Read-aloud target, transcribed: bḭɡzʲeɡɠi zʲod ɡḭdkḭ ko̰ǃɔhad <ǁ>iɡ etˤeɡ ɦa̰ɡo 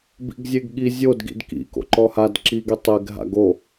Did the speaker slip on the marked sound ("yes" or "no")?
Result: no